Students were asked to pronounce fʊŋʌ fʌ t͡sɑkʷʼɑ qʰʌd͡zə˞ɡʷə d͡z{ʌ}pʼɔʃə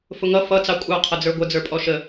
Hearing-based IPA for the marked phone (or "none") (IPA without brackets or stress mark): ə˞